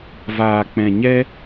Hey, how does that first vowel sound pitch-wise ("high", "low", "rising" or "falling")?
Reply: low